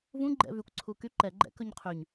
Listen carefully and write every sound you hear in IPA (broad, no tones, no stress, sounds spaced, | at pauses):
v ũ ɡ͡ǃ ɛ̰ v y kʷ ǀʰ u k y ǃ ɛ ɡ͡ǃ ɛ̰ k ɵ ɲ qʰ y ɲ